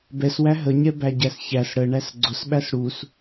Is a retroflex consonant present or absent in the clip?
present